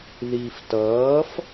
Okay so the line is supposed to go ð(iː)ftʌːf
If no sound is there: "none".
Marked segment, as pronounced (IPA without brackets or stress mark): iː